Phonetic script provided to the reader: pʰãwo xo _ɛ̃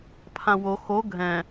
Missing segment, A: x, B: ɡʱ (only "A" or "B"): B